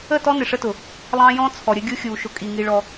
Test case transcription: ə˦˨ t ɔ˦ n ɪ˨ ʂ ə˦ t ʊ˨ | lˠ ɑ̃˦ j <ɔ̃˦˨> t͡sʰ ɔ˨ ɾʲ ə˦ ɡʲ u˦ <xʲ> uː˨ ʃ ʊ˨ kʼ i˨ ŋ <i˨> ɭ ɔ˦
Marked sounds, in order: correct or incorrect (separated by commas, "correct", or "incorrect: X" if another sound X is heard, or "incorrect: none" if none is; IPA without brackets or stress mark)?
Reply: incorrect: ɔ̃˦, correct, incorrect: i˦